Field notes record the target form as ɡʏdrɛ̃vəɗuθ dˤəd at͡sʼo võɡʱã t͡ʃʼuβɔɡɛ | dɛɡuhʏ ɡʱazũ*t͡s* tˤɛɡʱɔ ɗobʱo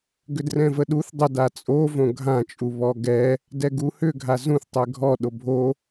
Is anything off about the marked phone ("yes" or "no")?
yes